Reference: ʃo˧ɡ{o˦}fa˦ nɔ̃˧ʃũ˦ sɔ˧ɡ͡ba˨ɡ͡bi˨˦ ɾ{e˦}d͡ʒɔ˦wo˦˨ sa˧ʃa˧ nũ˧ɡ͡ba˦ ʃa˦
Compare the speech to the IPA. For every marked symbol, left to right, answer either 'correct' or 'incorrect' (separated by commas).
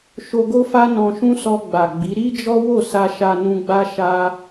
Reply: correct, incorrect